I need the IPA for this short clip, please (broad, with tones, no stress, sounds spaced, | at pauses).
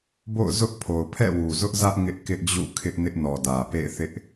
b o̰˦˨ ʊ̯ z ʊ˦ ʔ pʰ o˨ ʊ̯ pʰ ɛ̰˦˨ w u˨ z ʊ˦ ʔ z ä˦ ʔ ŋ ɪ˦ ʔ k ɪ˦ ʔ d͡ʑ ṵ˦˨ kʰ ɪ˦ ʔ n ɪ˦ ʔ n ɔ˨ d ä˨ p ḛ˦˨ ɪ̯ θ ɪ˦ ʔ